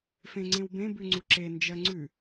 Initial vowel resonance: nasal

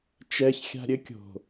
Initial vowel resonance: oral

